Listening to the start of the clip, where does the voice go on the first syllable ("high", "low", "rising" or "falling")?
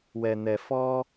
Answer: low